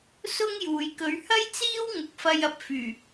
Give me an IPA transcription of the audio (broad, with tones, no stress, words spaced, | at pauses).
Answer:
sʊ˥ŋjuː˨j kɵ˨˧ɥhɐ˥jt͡siː˥w ŋʊ˨˥k̚fɐ˧j ɐ˧p̚fyː˨˩